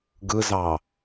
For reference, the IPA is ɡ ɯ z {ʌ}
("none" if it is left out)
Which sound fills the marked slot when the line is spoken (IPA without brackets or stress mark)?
ɑ